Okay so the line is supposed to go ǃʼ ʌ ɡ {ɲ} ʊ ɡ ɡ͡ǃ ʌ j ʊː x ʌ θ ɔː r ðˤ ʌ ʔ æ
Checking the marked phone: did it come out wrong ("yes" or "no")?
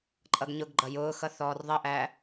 no